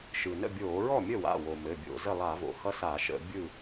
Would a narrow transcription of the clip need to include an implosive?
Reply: no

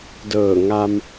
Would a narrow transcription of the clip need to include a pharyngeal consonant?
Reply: no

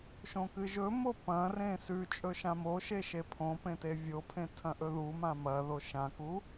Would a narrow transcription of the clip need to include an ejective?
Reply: yes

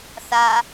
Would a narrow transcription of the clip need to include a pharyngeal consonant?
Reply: no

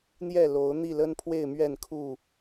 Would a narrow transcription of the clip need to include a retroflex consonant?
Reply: no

